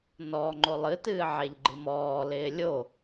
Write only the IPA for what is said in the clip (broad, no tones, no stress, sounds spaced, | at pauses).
n ɔ ŋ͡ǃ o lˠ ɨ t ɨː ʕ e ʎ ɡ͡ǃ ɨ m ɔː l ɪː lʲ o